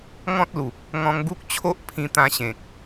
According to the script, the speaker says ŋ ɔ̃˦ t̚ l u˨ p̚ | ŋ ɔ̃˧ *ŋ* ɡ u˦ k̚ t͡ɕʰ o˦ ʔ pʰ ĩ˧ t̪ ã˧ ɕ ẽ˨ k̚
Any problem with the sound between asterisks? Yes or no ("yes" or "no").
no